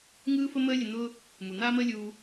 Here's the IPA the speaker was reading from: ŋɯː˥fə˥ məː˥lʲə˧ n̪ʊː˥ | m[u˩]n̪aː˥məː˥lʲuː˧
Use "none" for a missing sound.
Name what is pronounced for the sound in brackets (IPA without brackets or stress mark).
u˩